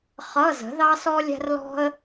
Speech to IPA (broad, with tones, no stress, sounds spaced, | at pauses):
χ ʌ˧˥˧ z ə̤˩˥ ð ɑ˥ s ɔ˥ lʲ æ̤˥ r l ɔ̤˥ ə̯